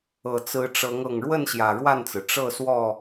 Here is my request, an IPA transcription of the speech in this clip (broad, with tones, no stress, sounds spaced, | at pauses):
ɤ˨˩ t͡s ɹ̩˨˦ ʈ͡ʂ ɤ˨˦ ŋ ɤ˨˩ ŋ ɻ w ə˥˨ n ɕ j ä˨˩ ɻ w a˥˨ n t͡s ɹ̩˩ ʈ͡ʂ ɤ˥˨ s w ɔ˥˨